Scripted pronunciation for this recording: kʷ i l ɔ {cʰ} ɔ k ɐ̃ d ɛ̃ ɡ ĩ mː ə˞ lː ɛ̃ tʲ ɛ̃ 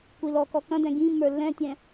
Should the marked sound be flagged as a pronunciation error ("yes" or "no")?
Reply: yes